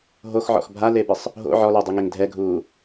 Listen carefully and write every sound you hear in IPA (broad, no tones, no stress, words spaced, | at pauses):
ɦoxʕɔ̰x bʱalebɪsˤ | ɦo̰ ʕɔlʊːdˤiŋeŋ dʱɛɡʱuː